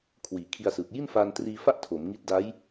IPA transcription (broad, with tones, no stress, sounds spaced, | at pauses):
kʰ w iː˩˦ kʰ i˧ a̯ s ɯː˨˩ k̚ j i˥˩ n f aː˧ n t r iː˧ f a˥˩ ʔ tʰ o˩˦ m ŋ i˦˥ t̚ d a˦˥ j